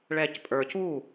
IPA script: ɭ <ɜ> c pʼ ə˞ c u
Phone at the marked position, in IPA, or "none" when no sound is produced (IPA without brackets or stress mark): ɛ